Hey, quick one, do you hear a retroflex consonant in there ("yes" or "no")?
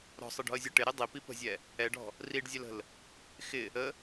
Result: yes